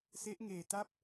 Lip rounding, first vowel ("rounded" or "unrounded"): unrounded